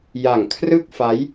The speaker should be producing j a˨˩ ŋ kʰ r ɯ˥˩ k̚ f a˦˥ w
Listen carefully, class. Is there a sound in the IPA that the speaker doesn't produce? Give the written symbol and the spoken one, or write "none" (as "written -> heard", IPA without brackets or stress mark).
w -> j